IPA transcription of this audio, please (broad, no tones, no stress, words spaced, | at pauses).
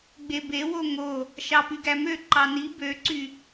ɡ͡bebewo ŋo | ʃɑpyɡæmø ǃɑni bøǀy